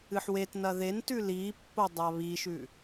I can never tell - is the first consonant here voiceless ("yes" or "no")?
yes